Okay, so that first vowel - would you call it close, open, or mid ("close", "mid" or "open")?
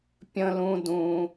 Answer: mid